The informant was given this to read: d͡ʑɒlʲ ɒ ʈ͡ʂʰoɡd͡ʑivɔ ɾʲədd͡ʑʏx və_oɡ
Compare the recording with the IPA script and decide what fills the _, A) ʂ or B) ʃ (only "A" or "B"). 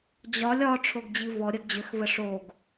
A